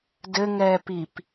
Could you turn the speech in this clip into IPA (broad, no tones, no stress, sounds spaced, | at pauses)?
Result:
d ɘ ŋ ɛː p i p